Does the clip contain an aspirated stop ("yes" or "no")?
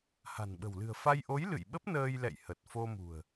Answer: no